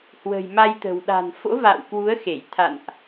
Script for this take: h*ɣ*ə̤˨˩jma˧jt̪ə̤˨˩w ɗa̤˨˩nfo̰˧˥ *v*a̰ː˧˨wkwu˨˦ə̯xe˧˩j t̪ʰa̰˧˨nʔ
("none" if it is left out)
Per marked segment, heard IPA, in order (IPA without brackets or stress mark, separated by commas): w, v